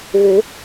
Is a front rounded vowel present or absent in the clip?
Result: present